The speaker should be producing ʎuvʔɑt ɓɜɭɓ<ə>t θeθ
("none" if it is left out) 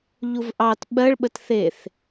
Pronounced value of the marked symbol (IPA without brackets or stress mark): ə